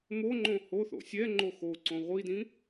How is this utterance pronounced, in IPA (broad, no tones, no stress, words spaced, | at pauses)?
moŋ͡ǃõ hoθo̰ sʲɛ ŋ͡ǃoxoǀõ ʁʷidĩ